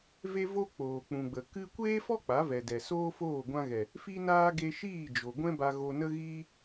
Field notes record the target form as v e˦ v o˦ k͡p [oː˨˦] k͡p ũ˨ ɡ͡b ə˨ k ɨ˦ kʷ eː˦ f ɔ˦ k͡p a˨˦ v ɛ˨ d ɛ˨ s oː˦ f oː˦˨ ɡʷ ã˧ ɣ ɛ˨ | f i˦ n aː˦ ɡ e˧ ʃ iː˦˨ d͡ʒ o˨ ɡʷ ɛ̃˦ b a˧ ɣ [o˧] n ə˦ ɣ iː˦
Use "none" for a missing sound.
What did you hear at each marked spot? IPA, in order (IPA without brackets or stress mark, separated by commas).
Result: oː˨, o˧